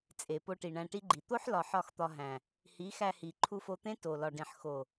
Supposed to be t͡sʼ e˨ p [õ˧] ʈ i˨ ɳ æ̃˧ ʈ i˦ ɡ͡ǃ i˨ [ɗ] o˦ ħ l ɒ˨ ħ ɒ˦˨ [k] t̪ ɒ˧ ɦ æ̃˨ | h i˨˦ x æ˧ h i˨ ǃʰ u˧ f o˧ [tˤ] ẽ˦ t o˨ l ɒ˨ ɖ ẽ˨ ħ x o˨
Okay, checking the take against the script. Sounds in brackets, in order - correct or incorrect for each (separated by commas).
incorrect, incorrect, incorrect, incorrect